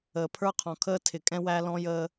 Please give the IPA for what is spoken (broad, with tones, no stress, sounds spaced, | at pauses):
əː˨ pʰ ə˞˦ qʰ ɔ̃˨ kʰ əː˦ tʰ ɪ˨ kʼ ɛ̃˦ w æ˦ l ɔ̃˦ j əː˦